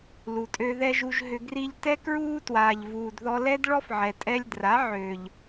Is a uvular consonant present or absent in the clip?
absent